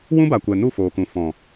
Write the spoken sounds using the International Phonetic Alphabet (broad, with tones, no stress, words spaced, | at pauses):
wũ˦ba˨kʷɛ˨ nu˦˨foː˨kũ˨ fɔ̃˨